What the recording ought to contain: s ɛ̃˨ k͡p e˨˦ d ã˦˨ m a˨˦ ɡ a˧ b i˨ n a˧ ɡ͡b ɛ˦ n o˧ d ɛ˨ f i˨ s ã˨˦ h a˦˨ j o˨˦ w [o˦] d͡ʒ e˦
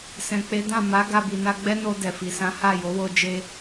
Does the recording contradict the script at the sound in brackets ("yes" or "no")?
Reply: no